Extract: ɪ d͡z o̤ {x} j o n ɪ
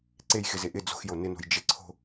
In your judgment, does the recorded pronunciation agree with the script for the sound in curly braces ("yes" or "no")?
yes